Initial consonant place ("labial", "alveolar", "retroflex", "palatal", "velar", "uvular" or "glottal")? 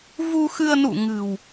labial